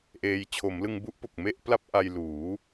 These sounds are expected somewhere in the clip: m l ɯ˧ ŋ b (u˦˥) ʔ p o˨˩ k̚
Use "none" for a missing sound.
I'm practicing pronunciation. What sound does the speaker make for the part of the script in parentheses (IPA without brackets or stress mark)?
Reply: u˦˥